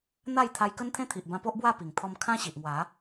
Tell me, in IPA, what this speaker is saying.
n̪ a˥˧ j t̪ʰ a˧ j k ə˦ n t̪ʰ ẽ˦ t̪ʰ i˨ ʔ b ã˧ p o˦ ʔ b w a˥˧ p i˨˩ ŋ t̪ʰ ɔ˧ m kʰ ã˦ ɕ i˨ ʔ ŋ w a˨˦

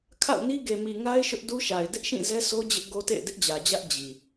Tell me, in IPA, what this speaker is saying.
kʰ a̰˦˨ ʊ̯ n i˦ ɡ e˨ m i˨ ŋ a˦ ɪ̯ ʃ ʊ˦ ʔ d u˦ ʃ a˨ ɪ̯ d ɪ˦ ʔ ʃ ĩ˦˨ z ɛ˦ sʰ o˦ d͡ʑ ɪ˦ ʔ ɡ o˦ t ḛ˦˨ ɪ̯ d ɪ˦ ʔ d͡ʑ ä˨ d͡ʑ ä˦ ʔ d͡ʑ i˨

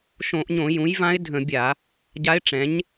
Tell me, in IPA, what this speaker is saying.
ʃ õ˧˩˧ ʔ ɲ õ˧˩˧ j ũ˩˥ j v ã˧˥ ɪ̯ dʱ ə̃˧˩˧ bʲ a˧˩˧ | ɟ a˧˥ ɪ̯ ʈ͡ʂ ɛ̃˩˥ ɲ

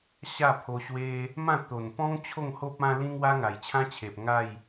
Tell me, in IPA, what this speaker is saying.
ɕ a˥˧ pʰ o˧ ɕ w e˦ | m ã˥˧ t̪ o˨˩ n p ɔ̃˦ ŋ t͡ɕʰ o˥˧ ŋ h o˦ p̚ ã˧ l ĩ˧ ŋ w a˦ ŋ a˨˩ j t͡ɕʰ ã˦ t͡ɕʰ e˨ p̚ ŋ a˥˧ j

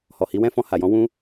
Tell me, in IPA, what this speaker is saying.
h ɔ˨ h i˨˦ w ɛ̃˦˨ f ɔ̃˧ h a˨ j ɔ̃˨˦ w ũ˦

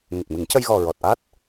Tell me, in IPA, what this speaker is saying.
ŋ ə˨˩ k̚ m ɨ˨˩˦ ŋ c ə˧ j ɣ ɔ˨˩ ɹ ɔ˨˩ t̚ ʔ a˦˥ t̚

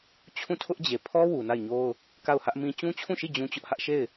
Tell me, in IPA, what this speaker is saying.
t͡ɕʰ ũ˦˨ tʰ ʊ˦ ʔ d͡ʑ e˨ pʰ ɔ˦ w u˨ n a˦˨ ɪ̯ ɲ o˦ ʊ̯ | k a˦˨ ʊ̯ h ä˦ ʔ m ĩ˦ t͡ɕ ũ˦ t͡ɕʰ ũ˦˨ ʃ i˦˨ d͡ʑ ũ˦ t͡ɕ ʊ˦ ʔ h ä˦ ʔ ʃ e˦˨ ɪ̯

